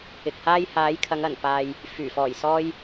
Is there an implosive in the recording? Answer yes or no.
no